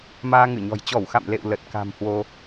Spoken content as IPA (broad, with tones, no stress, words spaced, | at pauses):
maː˧ŋɨ˧˩ɲɔ̤˨˩j t͡ɕɔ˧˩wxa̰˧˨mlḛ˧˨w lə˨˩t̚ka̤˨˩mhwo˧